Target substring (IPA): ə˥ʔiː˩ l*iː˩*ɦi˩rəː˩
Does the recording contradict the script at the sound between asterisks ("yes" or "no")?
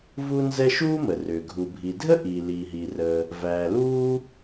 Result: no